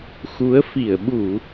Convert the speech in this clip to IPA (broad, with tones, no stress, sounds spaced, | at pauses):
x u˨˦ ə̯ f i˧˩ ə̯ ɓ u˧˩˨